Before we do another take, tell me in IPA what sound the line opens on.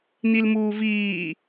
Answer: n̪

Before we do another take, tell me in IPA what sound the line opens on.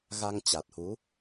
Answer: ɣ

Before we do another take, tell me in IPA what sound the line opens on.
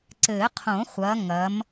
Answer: ǀ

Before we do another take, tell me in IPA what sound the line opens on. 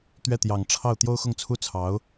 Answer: t̪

